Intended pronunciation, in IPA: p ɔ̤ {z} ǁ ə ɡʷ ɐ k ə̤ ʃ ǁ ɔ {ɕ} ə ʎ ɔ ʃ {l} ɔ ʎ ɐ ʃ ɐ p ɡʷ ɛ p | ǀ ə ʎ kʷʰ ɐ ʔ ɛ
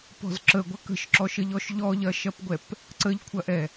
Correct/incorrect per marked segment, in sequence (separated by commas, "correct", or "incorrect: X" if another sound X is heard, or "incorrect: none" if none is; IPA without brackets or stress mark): correct, incorrect: ʃ, incorrect: ʎ